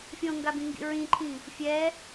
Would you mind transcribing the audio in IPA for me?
fʲ õ ŋ ɡ a b ĩ ŋ ɡ ḭ ɹ ĩ ǃʰ ĩ | fʲ ɛ

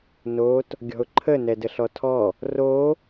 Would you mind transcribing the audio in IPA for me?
n o t | ɡʲ ɔ̤ ʊ̯ ǃʰ ə n ɛ d ə ɬ ɔ tʰ ɔ | r o

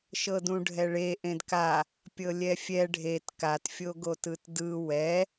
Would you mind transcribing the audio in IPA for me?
ʃ ɤ d ũ ɖʱ ɛ ɭ e ʔ ẽ d k a | pʲ ɤ lʲ ɛ fʲ ɛ ɖʱ e t k a t fʲ o ɡ o t ɯ t d ɯ w ɛ

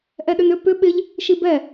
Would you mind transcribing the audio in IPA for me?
ʔ ɛ ɗ ʏ n ʏ p ʏ ɓ ɪ ʎ | ʃ i b ɛ

